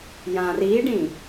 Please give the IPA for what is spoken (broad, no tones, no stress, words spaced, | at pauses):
jãriɖĩ